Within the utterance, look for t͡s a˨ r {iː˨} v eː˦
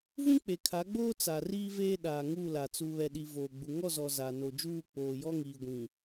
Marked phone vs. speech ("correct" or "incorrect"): incorrect